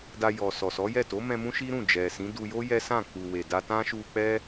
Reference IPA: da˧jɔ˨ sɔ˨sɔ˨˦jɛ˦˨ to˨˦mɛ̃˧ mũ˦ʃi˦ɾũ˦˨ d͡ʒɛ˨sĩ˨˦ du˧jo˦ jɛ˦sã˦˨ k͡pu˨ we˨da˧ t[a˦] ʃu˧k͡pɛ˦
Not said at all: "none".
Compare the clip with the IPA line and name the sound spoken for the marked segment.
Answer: ã˦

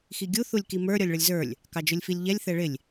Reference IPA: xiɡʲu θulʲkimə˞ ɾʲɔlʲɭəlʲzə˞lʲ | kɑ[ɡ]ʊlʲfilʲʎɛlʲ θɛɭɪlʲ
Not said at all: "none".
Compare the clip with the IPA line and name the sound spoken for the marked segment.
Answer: d͡ʒ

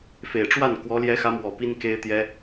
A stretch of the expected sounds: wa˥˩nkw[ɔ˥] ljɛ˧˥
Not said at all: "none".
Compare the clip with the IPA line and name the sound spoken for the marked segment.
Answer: ɔ˧˥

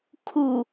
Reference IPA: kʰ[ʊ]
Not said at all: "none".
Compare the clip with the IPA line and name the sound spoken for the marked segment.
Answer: u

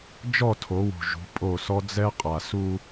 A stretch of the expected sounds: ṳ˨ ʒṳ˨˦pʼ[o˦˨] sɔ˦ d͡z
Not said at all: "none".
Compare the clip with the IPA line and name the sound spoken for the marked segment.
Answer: o˦˨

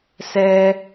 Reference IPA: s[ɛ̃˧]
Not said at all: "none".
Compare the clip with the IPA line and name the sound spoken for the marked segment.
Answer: ɛ˧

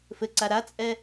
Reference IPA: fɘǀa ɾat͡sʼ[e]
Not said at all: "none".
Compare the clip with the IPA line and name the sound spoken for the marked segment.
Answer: ɛ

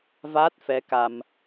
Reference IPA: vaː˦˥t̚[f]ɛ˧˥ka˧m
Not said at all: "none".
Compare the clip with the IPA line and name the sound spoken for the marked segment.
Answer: f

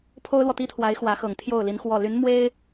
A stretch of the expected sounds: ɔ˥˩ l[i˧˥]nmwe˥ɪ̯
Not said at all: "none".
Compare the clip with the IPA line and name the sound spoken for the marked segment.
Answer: y˧˥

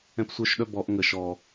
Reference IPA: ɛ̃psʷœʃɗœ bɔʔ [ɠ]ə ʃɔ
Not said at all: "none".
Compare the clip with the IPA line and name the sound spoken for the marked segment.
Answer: ŋ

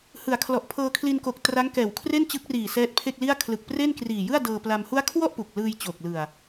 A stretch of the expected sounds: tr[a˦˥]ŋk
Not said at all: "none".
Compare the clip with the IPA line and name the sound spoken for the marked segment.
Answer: a˦˥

